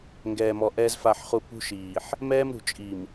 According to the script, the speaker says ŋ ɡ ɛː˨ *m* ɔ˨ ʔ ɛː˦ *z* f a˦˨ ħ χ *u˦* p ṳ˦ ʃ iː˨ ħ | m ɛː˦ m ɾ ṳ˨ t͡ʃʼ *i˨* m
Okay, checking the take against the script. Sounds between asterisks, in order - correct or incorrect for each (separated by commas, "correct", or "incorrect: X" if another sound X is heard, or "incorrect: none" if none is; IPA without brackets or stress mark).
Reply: correct, correct, correct, correct